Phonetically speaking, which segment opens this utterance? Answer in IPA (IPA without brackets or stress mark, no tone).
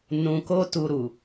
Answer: n